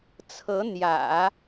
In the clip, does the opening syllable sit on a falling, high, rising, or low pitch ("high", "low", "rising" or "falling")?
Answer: rising